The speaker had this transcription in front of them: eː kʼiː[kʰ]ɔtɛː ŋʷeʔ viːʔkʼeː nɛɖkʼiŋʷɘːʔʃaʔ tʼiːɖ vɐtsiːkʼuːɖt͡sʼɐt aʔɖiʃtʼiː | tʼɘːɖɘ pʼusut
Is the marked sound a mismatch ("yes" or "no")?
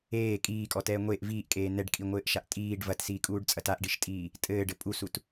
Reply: yes